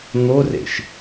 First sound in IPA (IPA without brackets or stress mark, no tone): n̪